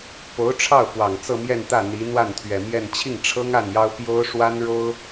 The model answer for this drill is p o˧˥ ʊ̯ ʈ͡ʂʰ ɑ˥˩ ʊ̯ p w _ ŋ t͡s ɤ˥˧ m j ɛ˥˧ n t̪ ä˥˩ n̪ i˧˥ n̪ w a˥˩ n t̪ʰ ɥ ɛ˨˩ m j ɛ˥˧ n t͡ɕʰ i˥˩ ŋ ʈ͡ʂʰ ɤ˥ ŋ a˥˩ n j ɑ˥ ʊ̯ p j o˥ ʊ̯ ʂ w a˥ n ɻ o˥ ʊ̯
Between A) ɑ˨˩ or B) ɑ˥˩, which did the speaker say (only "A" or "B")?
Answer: A